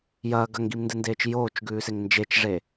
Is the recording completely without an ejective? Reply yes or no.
yes